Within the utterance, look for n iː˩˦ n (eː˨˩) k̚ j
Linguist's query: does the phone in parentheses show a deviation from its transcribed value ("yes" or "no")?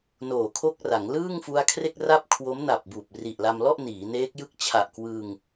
yes